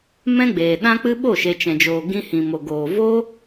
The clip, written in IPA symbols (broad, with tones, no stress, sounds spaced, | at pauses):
m ɛ̃˦ ɡ͡b eː˨ ɗ ã˦ k͡p ɨ˦ ɓ o˦˨ ʃ e˨ t͡ʃ ɛ̃˨ d͡ʒ oː˨ ɡ ĩ˧ h ĩ˨ m o˨ ɡ oː˨ v o˦